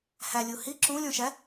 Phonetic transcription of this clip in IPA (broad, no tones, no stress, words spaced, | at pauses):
hælʲu hi ǁũlʲõʃæ